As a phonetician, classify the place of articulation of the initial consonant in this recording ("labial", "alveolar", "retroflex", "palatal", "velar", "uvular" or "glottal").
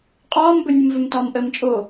uvular